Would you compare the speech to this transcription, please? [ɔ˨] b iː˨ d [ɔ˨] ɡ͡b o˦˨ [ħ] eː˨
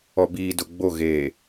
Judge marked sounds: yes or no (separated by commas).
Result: yes, no, no